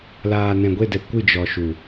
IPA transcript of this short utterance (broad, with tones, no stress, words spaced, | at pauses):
laː˨nɛ̃˨ɡʷe˦˨dɛ˨ kʷɨ˦˨ d͡ʒɔ˨ ʃu˨